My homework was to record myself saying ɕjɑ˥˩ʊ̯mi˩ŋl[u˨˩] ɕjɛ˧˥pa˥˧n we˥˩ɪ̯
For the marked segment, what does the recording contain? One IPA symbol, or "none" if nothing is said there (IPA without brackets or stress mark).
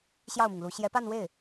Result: u˧˥